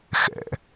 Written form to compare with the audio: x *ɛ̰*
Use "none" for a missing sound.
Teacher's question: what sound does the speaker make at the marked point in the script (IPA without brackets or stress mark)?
ɛ̰